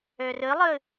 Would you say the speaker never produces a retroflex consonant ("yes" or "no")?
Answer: yes